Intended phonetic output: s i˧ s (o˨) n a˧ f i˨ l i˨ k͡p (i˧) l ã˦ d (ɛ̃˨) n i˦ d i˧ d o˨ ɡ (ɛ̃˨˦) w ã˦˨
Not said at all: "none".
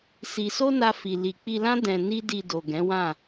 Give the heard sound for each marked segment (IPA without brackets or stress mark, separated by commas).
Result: o˦, i˧, ɛ̃˧, ɛ̃˨˦